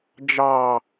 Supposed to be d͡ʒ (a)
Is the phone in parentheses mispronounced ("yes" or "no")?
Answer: yes